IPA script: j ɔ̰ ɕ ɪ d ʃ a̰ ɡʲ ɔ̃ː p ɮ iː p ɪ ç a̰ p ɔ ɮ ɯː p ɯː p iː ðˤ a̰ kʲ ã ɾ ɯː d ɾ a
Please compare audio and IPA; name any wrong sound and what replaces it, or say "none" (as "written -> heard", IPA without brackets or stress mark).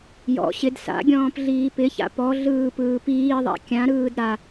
ʃ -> s